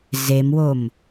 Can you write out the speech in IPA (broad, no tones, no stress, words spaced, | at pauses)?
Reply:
zemwom